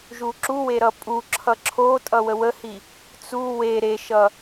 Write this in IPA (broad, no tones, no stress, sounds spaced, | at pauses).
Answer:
ʒ u ǁ u w e ɾ ʌ pʼ u ǁʰ ʌ ǁʰ o tʼ ʌ w ə w ə h i | t͡s u w e ɾ e ʃ ʌ